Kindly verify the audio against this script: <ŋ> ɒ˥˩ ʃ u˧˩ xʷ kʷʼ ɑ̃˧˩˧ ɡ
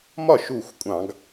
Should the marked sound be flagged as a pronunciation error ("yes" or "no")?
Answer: yes